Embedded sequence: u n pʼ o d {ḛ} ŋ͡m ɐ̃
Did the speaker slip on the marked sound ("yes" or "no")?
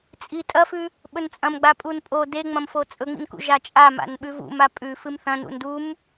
yes